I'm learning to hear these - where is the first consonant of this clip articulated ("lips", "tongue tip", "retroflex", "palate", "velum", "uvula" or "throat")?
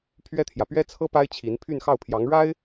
lips